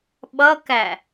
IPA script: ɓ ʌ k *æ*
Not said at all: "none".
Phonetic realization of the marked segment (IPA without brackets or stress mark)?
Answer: æ